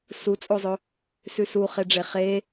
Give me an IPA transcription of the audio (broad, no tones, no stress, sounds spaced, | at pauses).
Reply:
s u t͡sʼ o zˤ ɵ | s ʉ s u χ e ɖ͡ʐ e χ e